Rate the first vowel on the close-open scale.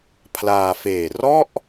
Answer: open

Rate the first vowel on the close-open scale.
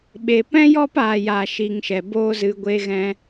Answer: mid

